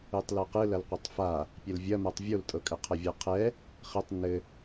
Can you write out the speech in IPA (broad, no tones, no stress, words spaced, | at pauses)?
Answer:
ɯtˤlɤqɯ lɐlqʷɐtˤfa | pʲɘlvʲɐmatˤ vʲoltʼɤkʼɘ qʰɐvʲɤqʰɛ | χɘtˤ nɘ